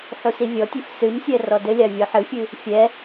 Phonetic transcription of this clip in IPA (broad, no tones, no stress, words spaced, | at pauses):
ħusivʲɔtʲef sɨmsʲɛ rɔdɘlʲa vʲoħɨfʲɨ | fʲɛ